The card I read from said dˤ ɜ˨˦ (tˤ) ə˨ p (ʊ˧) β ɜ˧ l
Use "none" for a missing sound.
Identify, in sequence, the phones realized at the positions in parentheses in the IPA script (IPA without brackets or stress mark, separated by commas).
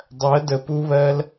d, u˧